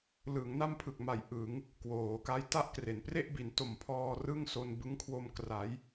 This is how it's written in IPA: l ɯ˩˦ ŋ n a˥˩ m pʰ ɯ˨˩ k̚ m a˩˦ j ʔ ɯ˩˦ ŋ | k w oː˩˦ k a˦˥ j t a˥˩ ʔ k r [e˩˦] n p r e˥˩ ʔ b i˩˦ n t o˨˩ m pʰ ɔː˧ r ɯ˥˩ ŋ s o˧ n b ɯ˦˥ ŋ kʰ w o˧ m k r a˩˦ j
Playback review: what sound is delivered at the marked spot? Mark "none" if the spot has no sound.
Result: e˩˦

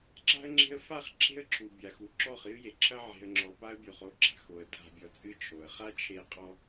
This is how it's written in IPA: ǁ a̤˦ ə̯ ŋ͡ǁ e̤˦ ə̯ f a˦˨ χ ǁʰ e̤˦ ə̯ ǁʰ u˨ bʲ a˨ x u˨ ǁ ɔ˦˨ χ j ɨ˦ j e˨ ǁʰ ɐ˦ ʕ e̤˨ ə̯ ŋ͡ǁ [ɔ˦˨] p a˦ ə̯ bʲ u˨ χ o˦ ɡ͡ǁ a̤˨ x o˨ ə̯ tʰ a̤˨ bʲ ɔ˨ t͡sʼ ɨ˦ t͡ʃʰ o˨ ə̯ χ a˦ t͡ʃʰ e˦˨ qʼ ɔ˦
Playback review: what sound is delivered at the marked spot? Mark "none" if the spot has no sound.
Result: ɔ˨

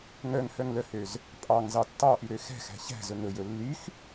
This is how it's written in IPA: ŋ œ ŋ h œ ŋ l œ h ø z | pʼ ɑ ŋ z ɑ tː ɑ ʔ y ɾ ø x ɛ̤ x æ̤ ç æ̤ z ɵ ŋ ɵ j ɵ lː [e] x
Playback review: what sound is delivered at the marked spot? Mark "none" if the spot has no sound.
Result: y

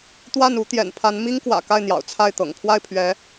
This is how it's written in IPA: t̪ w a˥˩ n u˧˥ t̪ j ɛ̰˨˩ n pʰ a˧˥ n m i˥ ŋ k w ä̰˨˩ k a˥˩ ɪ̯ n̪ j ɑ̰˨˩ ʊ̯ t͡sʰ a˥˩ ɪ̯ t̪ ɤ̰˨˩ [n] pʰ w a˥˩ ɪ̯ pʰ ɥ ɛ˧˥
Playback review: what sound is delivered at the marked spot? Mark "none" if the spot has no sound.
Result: ŋ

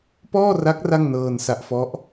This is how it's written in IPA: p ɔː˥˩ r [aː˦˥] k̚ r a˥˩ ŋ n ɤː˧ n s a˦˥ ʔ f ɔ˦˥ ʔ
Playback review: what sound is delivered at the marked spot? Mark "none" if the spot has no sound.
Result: a˦˥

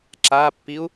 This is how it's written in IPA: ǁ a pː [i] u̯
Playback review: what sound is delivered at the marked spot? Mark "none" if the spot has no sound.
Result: i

